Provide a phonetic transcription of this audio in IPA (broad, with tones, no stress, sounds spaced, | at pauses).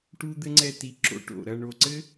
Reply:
ʈ u˥ d̪ ɘ˥ ŋ͡ǀ ɛ˥˧ t i˧ ǁ o̰˥ ʈ o̰˧˩ ɾ ɐ˥˧ ɳ o˧˩ ǀ ɘ˥